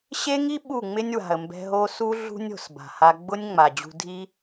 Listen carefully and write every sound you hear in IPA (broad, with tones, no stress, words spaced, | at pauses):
ɕe˦ŋi˦ ɓu˦˨ŋ͡mɪ˦nʲ wa̤˨ə̯ mbɛ̤˧ ɦo˧ su˦ ɮṳ˦nʲo̤˨sba̤˨ha˧ ɡ͡bʊ˦nʲ ŋ͡ma˨d͡ʑṳ˧ dʱi˦